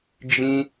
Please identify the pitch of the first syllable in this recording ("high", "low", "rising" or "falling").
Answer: high